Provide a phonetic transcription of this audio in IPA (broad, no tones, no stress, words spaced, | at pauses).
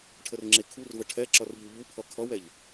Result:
ʈʰərŋ͡ǁekʰurvə ʈʰɛǁʌr ʎuʎupʰʌ kʰʌwɛʎ